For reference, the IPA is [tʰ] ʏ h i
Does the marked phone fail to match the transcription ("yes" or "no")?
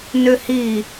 yes